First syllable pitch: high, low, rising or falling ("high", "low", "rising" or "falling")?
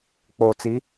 low